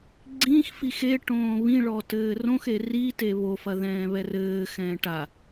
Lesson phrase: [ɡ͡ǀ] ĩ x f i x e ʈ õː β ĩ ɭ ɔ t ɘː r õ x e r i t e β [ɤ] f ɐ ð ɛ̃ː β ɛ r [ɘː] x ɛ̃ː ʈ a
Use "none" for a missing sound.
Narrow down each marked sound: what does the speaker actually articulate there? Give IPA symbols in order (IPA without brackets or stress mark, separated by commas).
ɡ͡ǀ, o, ɘː